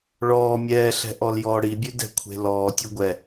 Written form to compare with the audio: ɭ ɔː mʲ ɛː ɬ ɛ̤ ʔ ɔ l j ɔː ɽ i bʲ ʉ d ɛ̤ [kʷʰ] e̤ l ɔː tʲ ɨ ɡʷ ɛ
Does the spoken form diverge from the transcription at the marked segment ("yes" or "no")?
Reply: no